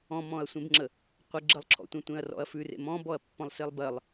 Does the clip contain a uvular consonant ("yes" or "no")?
yes